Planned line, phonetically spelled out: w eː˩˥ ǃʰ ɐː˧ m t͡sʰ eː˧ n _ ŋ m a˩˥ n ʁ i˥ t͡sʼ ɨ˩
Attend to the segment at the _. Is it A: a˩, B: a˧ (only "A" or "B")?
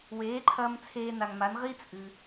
A